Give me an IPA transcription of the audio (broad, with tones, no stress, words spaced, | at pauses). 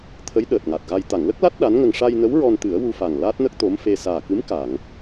t̪ʰə˧˥j ɗəː˨˩t̚ŋa˨˩t̚ɣa˧j t̪a˨˩˨ŋlə˦˥k̚la˦˥t̚ ɗa˧˥nŋə˧ŋ ʂa˧jnə˧˥w ɹɔ˧nt̪ɨ˨˩˦ə̯wu˧fa˨˩ŋ laː˦˥t̚nə˦˥k̚ t̪o˧˥mfe˧ saː˨˩kɨ˧˥m ka˨˩˨ŋ